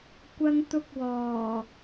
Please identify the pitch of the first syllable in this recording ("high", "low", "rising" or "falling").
high